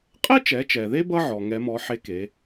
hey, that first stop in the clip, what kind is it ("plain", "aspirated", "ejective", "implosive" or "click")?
ejective